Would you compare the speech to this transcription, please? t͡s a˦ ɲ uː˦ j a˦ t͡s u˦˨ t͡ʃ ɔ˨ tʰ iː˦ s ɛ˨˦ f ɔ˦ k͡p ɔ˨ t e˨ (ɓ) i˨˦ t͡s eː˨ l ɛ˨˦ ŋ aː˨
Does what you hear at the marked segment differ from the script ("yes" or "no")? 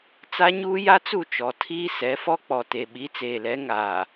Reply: no